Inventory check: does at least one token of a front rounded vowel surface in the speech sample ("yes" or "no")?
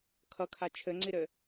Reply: no